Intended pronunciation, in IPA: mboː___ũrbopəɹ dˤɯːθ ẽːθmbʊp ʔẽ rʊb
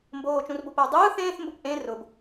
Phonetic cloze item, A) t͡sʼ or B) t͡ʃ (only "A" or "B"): B